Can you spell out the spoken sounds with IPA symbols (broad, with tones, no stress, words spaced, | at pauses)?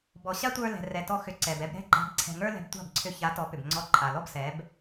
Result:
bɔ˨ɕa˦tʷə˞˧ lɛ̤˨rɛ˨ tɔ˧xʏ˨˦ǀɛ˨b ɛ˧bɾɛ̤˦ɡ͡ǃa̤˧b ǀʰɛ̤˨ ŋə˞˦lɛ̤˧btʷa̤˦˨bǀʰʏ˧ ça˨˦tɔ˨˦ pʏ˨bŋ͡ǀɔ˧ǃʼa˨ lɔ˦bsɛ˨˦b